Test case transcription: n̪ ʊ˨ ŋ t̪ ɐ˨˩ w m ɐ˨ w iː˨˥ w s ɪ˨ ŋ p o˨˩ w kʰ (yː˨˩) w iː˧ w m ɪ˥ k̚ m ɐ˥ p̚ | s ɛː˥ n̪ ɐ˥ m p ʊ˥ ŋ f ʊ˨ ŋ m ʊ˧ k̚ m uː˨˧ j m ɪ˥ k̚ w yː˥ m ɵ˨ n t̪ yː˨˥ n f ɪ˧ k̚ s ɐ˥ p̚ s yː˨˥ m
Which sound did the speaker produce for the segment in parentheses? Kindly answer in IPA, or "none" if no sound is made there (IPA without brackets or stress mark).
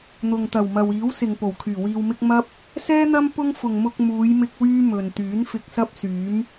yː˨˩